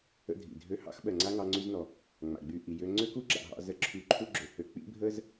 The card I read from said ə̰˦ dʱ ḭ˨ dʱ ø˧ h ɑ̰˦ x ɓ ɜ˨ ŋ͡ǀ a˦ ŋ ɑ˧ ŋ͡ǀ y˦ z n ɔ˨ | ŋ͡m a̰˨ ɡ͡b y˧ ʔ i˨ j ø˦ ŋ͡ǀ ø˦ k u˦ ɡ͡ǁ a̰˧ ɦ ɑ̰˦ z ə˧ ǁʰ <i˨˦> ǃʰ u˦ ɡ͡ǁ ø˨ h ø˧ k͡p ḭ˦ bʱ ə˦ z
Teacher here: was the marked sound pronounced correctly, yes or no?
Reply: no